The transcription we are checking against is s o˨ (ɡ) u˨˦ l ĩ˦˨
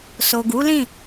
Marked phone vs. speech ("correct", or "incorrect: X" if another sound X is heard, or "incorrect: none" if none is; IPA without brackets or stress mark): correct